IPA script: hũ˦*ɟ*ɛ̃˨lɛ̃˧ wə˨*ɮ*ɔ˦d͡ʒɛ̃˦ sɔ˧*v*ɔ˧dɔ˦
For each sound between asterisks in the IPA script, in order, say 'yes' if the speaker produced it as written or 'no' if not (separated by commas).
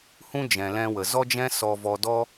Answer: no, no, yes